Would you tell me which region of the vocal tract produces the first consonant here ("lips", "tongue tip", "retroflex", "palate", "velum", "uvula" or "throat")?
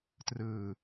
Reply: tongue tip